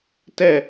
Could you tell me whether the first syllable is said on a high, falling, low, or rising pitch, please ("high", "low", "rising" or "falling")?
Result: falling